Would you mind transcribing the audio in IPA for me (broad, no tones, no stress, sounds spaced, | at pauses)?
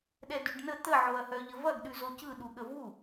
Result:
ɗ ɛ d ʉ ɖ n ə t̪ ə ʕ o ɐ̯ h œ ʎ ə v ɐ ɡ ɗ ʉ z o c ɯ ɗ u ɠ ə v u